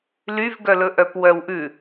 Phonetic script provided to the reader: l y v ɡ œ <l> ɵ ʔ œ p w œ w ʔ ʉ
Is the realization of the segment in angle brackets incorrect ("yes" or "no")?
no